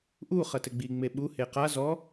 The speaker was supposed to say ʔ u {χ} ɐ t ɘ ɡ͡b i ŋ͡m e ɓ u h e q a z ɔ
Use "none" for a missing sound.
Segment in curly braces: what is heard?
χ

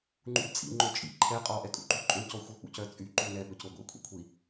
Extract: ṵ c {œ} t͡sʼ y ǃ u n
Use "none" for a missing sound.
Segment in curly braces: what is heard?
œ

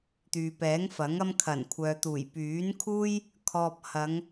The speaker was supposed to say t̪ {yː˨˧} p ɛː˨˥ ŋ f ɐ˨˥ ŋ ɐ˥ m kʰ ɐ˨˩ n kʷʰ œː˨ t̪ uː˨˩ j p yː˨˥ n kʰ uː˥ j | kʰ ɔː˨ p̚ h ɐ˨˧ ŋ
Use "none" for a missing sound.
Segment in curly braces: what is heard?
yː˨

